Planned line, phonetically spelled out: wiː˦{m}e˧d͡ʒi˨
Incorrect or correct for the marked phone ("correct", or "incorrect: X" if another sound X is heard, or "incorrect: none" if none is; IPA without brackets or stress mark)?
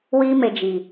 correct